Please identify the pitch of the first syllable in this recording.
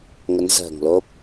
rising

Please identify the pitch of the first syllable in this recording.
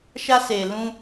high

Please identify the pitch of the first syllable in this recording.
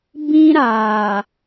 high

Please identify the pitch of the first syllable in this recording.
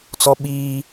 high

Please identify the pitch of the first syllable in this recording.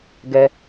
high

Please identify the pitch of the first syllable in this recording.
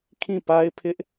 falling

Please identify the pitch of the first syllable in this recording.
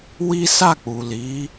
high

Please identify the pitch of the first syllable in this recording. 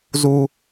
high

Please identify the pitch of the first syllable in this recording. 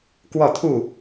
falling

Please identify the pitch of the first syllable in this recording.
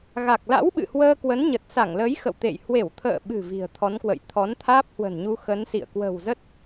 low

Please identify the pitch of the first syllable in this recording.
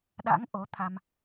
rising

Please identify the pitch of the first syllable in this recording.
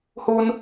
high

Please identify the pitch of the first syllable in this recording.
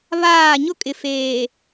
falling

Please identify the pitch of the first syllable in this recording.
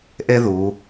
high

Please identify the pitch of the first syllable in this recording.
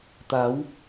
rising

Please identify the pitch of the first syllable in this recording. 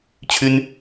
high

